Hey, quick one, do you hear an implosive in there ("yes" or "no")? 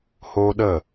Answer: yes